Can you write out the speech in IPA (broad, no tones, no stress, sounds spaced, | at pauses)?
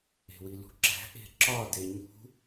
e̤ w i l ṳ ǁ æ̤ ʔ e̤ ǁ ɒ d e ɲ ṳ